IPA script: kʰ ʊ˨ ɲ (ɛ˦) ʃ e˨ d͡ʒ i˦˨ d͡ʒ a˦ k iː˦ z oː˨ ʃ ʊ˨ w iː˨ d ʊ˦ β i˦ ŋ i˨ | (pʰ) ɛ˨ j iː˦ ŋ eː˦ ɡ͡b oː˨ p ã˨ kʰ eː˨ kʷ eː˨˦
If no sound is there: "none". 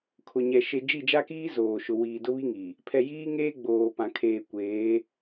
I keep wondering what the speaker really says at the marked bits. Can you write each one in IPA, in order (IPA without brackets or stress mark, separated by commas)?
ɛ˨, pʰ